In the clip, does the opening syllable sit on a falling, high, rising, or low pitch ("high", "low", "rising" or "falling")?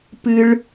low